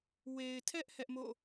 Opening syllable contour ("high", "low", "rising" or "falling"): low